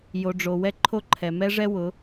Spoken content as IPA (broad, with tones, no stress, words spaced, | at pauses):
jo˨ ɖ͡ʐo˨ wɛ˦ǃʰo˦ ǃʰɛ˨ mɛ˦ʐɛ˦wʊ˨˦